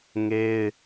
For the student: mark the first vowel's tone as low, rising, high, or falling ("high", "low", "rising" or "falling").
high